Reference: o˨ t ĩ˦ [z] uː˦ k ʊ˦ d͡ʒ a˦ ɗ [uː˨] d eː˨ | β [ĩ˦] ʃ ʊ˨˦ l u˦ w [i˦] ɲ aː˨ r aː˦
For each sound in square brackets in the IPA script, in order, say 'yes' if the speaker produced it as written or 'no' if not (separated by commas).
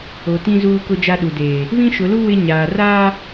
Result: yes, no, yes, no